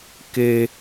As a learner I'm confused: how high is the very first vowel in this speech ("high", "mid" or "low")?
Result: mid